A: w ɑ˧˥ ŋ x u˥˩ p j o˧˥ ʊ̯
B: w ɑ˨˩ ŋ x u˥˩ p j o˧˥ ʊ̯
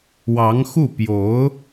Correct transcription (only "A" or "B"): A